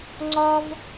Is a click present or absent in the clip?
present